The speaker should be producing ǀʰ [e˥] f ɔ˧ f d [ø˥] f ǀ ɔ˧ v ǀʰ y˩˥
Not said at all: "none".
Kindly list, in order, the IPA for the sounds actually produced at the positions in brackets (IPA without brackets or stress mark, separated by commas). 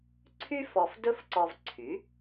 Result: y˥, ɵ˥